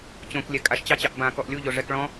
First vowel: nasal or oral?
nasal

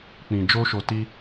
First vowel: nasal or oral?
nasal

